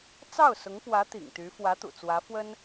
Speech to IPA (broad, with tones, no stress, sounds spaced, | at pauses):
t͡s ɑ˥˩ ʊ̯ s ʊ˧˥ ŋ p w ä˧˥ t̪ ḭ˨˩ ŋ t̪ y˧˥ f w ä˧˥ t̪ ṵ˨˩ t͡s w ä˧˥ f w ə˥ n